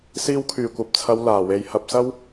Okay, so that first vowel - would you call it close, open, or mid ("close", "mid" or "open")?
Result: close